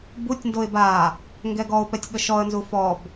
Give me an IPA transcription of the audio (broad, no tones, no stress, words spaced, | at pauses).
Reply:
butʲndoɪ̯ ba | ŋɡɛɡɔʊ̯pɛtʲ ɠəʃɔə̯nzu fɔb